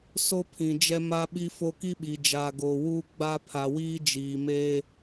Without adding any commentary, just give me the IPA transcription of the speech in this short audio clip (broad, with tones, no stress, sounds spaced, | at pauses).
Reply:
s o˦ pʰ ĩ˨ d͡ʒ ɛ˦ m a˦ ɓ i˦ f o˦ k i˦ ɓ i˨ d͡ʒ aː˨ ɡ oː˨ w uː˦ ɡ͡b a˦ pʰ a˨ w iː˦ d͡ʒ iː˨ m e˦